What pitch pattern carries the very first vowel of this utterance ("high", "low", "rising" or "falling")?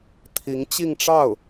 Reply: rising